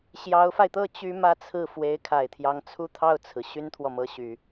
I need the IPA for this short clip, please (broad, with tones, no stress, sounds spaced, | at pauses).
ɕ j ɑ˧˥ ʊ̯ f a˧ ɪ̯ t̪ ɤ˥˩ t͡ɕ y˥ m ä˥ t͡sʰ ɹ̩˥˩ f w e˧˥ ɪ̯ kʰ a˨˩ ɪ̯ t̪ʰ j ɑ˧˥ ŋ t͡sʰ u˥˧ t̪ʰ ɑ˥˩ ʊ̯ t͡sʰ ɹ̩˩ ɕ y˥ n t̪ʰ w ɔ˨ m ɤ˧˥ ɕ y˨˩˦